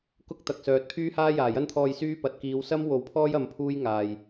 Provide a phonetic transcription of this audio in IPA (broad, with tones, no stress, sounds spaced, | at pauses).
k ʊ˥ k̚ t̪ ɐ˨ k̚ s œː˨ t̚ pʰ yː˥ h aː˥ j aː˨˩ j ɐ˥ n t̪ʰ ɔː˧ j s yː˥ p ɐ˨ t̚ k iː˨˧ w s ɐ˥ m w o˨˥ w pʰ ɔː˥ j ɐ˧ m pʰ uː˥ j ŋ aː˨ j